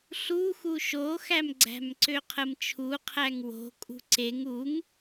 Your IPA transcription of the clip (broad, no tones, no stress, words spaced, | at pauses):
ɬuxu ʃoxæmɡ͡ǀæ̤mǀø qʰəmt͡ʃʰuqʰæŋ wo̤ kʼṳǀeŋ uŋ